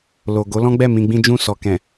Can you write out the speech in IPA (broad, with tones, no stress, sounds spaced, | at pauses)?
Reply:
l o˨ ɡ o˨˦ l ɔ̃˦ ɡ͡b ɛ˦˨ m ĩ˧ ɡ͡b ĩ˦ d͡ʒ ũ˦˨ s ɔ˨ k ɛ̃˨